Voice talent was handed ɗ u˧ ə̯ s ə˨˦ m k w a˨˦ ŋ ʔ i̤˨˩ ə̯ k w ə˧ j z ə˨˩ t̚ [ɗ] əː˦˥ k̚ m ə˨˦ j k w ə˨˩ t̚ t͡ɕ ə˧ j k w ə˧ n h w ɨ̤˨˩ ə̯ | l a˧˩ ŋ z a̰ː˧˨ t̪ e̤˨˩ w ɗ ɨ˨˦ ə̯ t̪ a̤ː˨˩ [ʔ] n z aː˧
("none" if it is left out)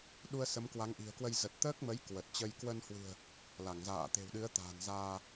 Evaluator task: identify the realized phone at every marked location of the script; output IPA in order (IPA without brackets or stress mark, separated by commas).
t̪, none